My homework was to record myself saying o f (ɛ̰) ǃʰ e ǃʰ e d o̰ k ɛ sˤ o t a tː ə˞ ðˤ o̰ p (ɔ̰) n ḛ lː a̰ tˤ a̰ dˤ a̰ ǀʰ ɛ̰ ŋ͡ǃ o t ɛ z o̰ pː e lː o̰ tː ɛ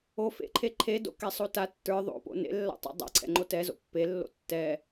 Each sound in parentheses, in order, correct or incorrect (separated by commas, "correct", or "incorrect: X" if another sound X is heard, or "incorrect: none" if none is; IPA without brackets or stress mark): incorrect: ḛ, incorrect: o̰